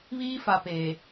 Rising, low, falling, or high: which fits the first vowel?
high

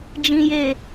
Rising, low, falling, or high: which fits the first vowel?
low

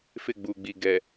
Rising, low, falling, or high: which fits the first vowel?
falling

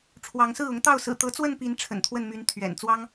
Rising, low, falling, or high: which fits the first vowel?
rising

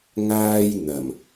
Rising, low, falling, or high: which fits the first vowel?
high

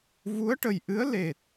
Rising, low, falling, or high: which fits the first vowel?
rising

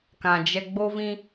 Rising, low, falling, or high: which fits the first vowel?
low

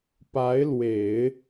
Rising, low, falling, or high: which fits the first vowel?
rising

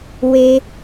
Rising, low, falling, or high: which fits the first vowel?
high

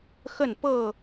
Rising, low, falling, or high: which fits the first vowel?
falling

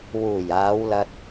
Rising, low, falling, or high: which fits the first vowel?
low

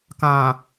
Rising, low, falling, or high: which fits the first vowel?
low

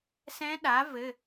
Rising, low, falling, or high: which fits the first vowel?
rising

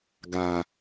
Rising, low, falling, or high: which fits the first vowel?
low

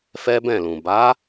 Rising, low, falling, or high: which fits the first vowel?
high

